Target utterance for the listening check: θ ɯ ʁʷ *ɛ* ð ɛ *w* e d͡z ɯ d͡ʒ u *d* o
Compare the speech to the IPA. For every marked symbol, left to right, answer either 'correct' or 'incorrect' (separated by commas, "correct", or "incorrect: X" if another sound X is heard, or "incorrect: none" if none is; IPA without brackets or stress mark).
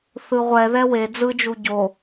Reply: correct, correct, incorrect: ɟ